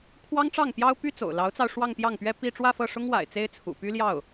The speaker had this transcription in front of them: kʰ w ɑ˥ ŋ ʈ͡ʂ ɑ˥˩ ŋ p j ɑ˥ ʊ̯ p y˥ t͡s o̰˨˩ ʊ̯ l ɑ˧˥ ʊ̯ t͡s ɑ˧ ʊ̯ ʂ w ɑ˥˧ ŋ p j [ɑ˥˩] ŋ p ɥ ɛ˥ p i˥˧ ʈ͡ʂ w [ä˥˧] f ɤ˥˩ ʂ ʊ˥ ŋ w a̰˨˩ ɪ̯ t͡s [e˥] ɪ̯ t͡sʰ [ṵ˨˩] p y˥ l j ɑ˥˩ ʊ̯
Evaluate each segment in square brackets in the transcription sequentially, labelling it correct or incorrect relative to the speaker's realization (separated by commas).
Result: correct, correct, correct, correct